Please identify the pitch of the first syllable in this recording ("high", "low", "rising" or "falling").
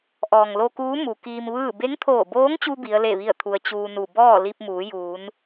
low